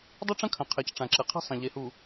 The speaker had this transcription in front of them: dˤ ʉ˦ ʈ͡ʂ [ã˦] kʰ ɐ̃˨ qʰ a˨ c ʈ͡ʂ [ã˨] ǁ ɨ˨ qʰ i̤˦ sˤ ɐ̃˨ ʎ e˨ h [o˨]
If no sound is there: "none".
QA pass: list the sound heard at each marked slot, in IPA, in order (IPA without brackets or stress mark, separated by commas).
ɐ̃˦, ã˨, u˨